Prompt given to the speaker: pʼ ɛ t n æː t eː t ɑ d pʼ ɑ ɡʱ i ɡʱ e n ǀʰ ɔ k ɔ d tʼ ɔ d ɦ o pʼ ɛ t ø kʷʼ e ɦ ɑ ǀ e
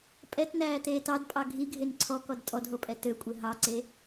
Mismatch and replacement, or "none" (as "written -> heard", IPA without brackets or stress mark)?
none